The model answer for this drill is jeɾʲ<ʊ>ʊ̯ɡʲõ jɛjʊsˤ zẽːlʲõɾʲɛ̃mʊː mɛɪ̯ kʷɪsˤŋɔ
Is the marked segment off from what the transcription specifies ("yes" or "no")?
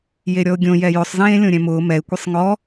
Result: yes